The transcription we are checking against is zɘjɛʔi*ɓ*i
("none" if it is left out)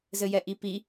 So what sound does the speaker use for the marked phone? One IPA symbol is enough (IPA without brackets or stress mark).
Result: p